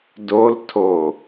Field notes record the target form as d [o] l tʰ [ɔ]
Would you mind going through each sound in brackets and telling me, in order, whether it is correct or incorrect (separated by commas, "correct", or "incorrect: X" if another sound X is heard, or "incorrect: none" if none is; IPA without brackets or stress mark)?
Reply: correct, incorrect: o